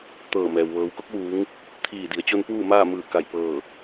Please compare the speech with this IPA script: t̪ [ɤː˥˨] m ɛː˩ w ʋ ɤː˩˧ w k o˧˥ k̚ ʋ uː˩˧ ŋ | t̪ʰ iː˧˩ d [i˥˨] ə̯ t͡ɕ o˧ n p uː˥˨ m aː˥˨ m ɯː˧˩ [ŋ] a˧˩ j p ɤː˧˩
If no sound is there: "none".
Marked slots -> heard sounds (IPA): ɤː˧˩, i˩˧, k

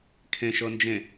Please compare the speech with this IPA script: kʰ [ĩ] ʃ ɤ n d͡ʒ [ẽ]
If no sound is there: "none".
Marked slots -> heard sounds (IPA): ẽ, ẽ

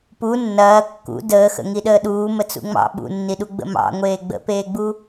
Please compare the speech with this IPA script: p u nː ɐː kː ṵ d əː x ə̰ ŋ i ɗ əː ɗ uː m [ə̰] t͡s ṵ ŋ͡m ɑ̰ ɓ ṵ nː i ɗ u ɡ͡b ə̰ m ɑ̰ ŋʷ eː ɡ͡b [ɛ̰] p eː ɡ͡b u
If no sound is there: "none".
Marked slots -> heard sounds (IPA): ə, ə̰

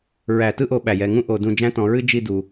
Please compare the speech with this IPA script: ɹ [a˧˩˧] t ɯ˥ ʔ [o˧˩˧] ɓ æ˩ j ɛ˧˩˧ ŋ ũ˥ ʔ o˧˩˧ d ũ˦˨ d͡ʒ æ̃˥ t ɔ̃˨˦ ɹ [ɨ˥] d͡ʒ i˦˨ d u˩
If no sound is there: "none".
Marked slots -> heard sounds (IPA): æ˧˩˧, o˧˩˧, ɨ˥

